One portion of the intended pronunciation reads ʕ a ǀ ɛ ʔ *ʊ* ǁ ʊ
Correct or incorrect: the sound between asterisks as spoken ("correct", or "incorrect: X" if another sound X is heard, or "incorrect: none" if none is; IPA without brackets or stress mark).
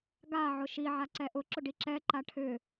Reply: correct